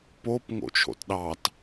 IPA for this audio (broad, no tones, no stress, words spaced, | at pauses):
pop ŋo̰t͡ʃʰo̰tɗɑt